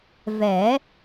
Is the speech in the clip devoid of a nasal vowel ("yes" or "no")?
yes